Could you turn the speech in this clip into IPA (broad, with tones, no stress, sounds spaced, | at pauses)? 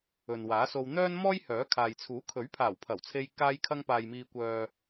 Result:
ɵ˨ n w aː˨˥ s o˧ w n̪ œː˥ n m ɔː˥ j h œː˨˥ kʰ aː˨ j t͡sʰ uː˨˥ kʰ ɵ˨˥ ɥ pʰ aː˨˩ w pʰ ɐ˨˩ w t͡sʰ e˧ j k aː˧ j kʰ ɐ˧ ŋ p aː˨ j m iː˨ kʷ œː˨